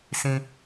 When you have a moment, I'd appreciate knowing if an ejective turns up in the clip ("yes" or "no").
no